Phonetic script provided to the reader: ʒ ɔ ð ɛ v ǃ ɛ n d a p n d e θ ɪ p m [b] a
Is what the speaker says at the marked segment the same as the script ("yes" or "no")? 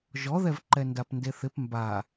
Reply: yes